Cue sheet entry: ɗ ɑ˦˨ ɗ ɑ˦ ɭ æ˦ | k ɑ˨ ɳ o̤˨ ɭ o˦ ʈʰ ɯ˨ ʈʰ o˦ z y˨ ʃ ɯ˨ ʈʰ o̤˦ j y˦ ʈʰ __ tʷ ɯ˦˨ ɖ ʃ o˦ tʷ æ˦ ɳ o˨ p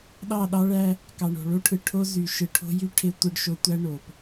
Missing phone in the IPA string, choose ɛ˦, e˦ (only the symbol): e˦